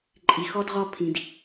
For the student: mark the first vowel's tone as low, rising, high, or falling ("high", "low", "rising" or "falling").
low